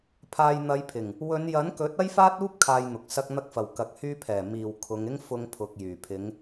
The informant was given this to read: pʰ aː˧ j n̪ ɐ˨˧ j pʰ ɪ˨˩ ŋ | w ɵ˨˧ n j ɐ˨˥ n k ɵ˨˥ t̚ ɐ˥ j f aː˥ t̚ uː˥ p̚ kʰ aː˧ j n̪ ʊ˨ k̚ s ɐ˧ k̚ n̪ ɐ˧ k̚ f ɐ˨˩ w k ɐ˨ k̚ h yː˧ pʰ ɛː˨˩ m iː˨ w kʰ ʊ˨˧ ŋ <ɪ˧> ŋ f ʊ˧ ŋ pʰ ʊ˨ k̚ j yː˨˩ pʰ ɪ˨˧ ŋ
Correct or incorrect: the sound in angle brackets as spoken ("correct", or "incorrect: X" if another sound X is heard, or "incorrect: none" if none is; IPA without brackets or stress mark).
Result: incorrect: ɪ˥